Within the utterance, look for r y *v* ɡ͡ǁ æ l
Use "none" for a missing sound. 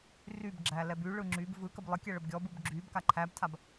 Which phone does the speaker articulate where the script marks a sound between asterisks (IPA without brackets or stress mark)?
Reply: b